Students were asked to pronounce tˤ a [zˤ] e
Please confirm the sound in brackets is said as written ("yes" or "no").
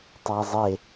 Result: yes